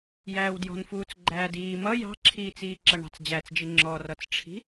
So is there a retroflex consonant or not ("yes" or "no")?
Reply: yes